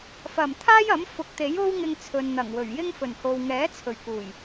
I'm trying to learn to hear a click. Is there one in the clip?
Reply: no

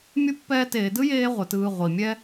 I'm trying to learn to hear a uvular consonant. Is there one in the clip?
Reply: yes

